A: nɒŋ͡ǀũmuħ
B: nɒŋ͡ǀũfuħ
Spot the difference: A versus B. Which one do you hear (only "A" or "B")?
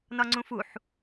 B